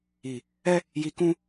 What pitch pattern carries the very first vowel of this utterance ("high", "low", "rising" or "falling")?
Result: low